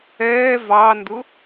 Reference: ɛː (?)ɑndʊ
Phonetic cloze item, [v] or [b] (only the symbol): v